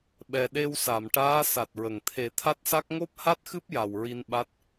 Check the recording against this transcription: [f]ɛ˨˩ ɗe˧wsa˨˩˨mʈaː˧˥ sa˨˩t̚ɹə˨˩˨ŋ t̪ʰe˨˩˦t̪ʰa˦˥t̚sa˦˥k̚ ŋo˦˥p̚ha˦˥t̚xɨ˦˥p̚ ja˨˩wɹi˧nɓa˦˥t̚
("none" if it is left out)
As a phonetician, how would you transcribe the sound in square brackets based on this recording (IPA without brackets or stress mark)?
ɓ